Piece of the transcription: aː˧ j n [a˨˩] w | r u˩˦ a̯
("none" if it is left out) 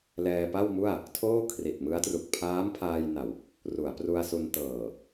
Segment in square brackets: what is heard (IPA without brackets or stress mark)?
a˨˩